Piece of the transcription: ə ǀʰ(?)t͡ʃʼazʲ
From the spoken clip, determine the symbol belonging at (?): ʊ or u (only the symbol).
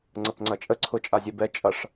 ʊ